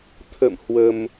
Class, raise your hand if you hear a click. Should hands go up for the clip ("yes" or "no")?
no